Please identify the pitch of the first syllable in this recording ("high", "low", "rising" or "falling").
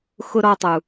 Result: low